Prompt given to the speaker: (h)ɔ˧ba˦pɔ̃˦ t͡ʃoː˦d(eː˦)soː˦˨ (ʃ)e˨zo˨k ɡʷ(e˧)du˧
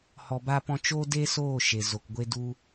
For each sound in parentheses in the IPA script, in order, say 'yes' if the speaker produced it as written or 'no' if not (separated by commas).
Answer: yes, yes, yes, yes